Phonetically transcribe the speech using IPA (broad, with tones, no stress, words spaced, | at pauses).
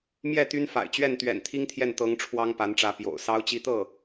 mjɛ˥˩ t̪y˥nfa̰˨˩ɪ̯ t͡ɕɥɛ˥˩nt̪ɥɛ̰˨˩n t̪ʰi˥ŋt̪ʰjɛ˥˩n t̪ɤ˧˥ŋ ʈ͡ʂʰwɑ˥ŋpa˧˥nʈ͡ʂä˧˥ pjo̰˨˩ʊ̯ sɑ˥ʊ̯t͡ɕi˥ t̪ɤ˥˩